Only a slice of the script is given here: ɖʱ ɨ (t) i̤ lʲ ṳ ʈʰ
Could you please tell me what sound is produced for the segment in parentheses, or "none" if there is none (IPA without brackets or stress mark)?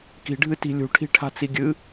t